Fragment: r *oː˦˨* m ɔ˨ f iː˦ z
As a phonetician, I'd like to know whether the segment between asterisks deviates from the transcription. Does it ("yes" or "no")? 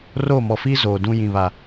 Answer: no